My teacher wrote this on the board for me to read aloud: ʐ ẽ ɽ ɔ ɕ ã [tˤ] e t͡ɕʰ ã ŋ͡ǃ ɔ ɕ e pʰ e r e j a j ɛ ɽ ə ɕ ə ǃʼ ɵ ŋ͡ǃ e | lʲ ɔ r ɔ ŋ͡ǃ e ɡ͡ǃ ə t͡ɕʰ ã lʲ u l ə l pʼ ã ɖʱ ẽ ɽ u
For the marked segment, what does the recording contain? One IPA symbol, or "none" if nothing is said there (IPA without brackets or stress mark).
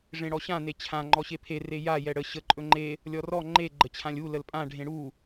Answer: n